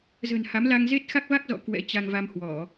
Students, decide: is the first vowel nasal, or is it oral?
oral